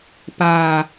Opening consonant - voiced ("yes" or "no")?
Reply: no